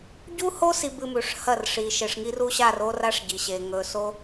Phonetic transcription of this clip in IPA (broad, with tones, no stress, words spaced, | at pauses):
ɟu˦ho˦ si˦bɨ˦mʉ˨ʂ hɐ˦˨r ʂi˨ʃe˨ʂŋi˦r u˦ɕa˦˨ro˦ra˦ʂ ɟi˨ɕe˨ ŋɵ˨so˦